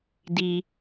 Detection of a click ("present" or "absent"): absent